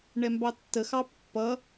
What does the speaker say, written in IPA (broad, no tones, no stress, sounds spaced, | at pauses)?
ɳ ɛ m b ɑ tː ə x ɑ pː ʌ